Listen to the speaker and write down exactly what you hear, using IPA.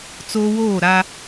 t͡s oː˦ w oː˦˨ ɾ a˦

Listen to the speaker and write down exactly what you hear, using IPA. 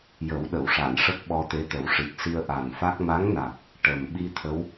j ə˨˩˦ w ɗ ə˨˩˨ w ʂ a˨˩˨ n ʂ ə˦˥ k̚ ɓ ɔ˧ t̪ e˧˥ t̪ ə˨˩˦ w ʂ i˨˩ k̚ s i˧ ə̯ ʔ a˨˩ n f a˦˥ k̚ m a˧˥ ŋ n a˨˩ k̚ | ʈ ə˨˩ m ɓ i˧ t̪ʰ ə˧˥ w

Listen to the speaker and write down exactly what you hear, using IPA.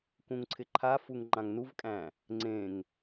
k ũ ŋ ǀʰ ɪ ǃʰ a f u ŋ ŋ͡ǃ ã ŋ n u v kʼ æ̃ | ŋ͡ǀ ẽ ŋ

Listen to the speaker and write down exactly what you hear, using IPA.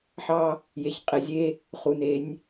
ħ ɑ˦ | j e˨ ç qʼ e˨ zʲ e˦ | χ u˨ n e˨˦ nʲ

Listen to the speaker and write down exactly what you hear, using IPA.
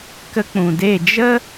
k ə˦ k͡p ũ˨ d e˦˨ d͡ʒ ə˦

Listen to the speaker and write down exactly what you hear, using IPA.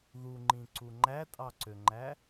ð u ŋ͡ǃ ĩ ǀ u ŋ͡ǃ æ tʼ ɑ ǀ ø ŋ͡ǃ æ

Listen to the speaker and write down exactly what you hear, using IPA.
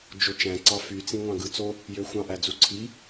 d͡ʒ o t͡ʃ æ̃ ǀ ɑ f y t͡s ĩ ŋʷ ɑ̃ ɡ ɯ t͡s o | j ø xʷ ɑ̃ ʔ æ d͡z u ǀʰ i

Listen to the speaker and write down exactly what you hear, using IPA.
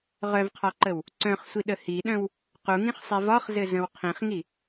ʁ œ v qʰ ɒ ǃ ə w | ǀ œ̃ χ sʷ i ɗ ə h i ɗ œ̃ w | q u ŋ ĩ χ sˤ i v ɒ χ z ɘ z ə̃ w qʰ ĩ χ ŋ i

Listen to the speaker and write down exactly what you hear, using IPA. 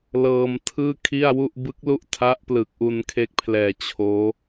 l ɤː˧ m tʰ ɯː˥˩ kʰ i˥˩ a̯ w u˥˩ ʔ b ɯ˦˥ k̚ l u˥˩ ʔ tʰ a˦˥ ʔ p l ɯ˨˩ k̚ ʔ u˧ n kʰ e˦˥ k̚ pʰ l ɛː˨˩ t͡ɕʰ oː˦˥

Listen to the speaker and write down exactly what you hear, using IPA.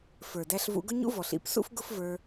f ə˞˨ d æ˧ ɬ v ṵ˧ ɡ ʊ˦ ɲ ṵ˦ v ɔ˨ ɬ ḭ˨˦ p s ṵ˦ f ɡ ʊ˦ f v ə˞˧

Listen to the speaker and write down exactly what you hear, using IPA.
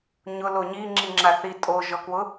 ɲ ʊ l o ɲ i ŋ͡ǁ i ŋ͡ǁ a θ i tʼ o ʒ ɔ k w ʊ

